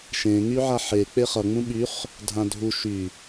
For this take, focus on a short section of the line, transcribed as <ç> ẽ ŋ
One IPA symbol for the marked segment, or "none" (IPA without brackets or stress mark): ʃ